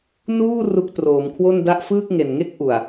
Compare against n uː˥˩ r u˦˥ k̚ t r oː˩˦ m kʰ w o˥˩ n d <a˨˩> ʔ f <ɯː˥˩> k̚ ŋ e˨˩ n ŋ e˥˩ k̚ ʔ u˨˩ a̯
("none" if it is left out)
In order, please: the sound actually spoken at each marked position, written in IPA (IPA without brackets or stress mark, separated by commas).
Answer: a˥˩, ɯː˥˩